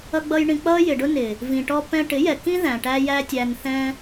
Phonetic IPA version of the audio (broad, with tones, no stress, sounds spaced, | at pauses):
ʌ˦ ɡ͡b ʌ˦ j ɳ ĩ˧ k͡p ʌ˦ j ɪ˨ ɖ ʊ˦ n ɪ˨ | v ĩ˨ ʈ ɔ˦ p ɛ̃˦ ʈ ɪ˨˦ j ɛ˨ k ĩ˦ ð æ̃˨ ʈ æ˦ j æ˦ tʲ æ˧ n θ ɛ̃˦